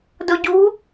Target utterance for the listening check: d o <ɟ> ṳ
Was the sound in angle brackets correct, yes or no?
yes